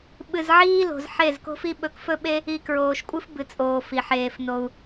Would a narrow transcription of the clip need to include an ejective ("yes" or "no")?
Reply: yes